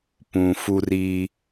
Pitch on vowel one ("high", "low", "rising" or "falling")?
low